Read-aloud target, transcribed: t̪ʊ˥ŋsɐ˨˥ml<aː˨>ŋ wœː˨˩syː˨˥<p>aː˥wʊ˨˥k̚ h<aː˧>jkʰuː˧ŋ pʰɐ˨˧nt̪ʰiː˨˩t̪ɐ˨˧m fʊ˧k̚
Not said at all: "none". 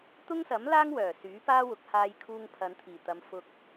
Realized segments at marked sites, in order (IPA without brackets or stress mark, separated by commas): aː˥, p, aː˧